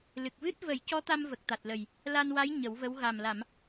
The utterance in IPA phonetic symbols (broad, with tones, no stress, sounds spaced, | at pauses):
l ɨ˨˩ k̚ v ɨ˦˥ t̚ v ə˨˩˦ j c ɔ˧˥ t̪ a˧ m v ə˨˩ k̚ t̪ a˨˩ t̚ l ə˨˩ j | l a˧ n w a˧˥ j ɲ ə˨˩˦ w v ə˧˥ w ɣ a˨˩ m l a˨˩˨ m